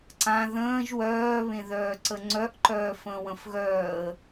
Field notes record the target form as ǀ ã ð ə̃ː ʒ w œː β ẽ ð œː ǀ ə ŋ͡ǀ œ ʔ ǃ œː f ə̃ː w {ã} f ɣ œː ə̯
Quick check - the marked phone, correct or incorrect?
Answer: incorrect